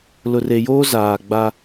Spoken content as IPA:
lʊ˨re˨joː˦ zaː˨ɡ͡ba˦

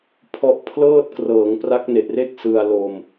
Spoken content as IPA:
pʰɔ˦˥ʔ pʰlɤː˥˩t̚krɤː˩˦ŋ pra˦˥k̚ne˨˩ʔre˥˩k̚ sɯ˧a̯lo˧m

